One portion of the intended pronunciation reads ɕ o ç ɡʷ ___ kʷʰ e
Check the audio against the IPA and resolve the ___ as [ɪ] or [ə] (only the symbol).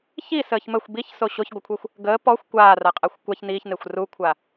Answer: ə